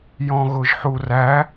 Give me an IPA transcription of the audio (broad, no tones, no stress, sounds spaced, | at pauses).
j ɔ̃ ɣ ʊ ʒ ħ u r æ